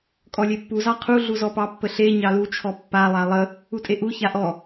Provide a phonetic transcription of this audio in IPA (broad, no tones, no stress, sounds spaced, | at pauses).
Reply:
kʼ ɔ lʲ e pː u z ɑ qʰ u ɮ u z ɔ p ɑ pː ə ɬ e ɲ ɑ l u t͡ʃʰ ɔ pː a lˠ a lˠ ə | u tʼ e ʔ u ç a ʔ ɔ